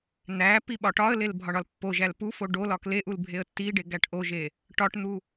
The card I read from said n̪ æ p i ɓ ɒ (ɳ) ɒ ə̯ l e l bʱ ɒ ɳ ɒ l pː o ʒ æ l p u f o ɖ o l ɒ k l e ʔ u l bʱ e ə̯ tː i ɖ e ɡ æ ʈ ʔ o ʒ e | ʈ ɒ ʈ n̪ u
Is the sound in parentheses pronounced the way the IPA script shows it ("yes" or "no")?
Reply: no